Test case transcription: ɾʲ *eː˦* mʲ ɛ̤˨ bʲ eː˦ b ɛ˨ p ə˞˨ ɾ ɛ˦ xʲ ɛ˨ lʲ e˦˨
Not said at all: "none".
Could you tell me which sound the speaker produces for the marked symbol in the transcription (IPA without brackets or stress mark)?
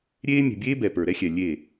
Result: eː˦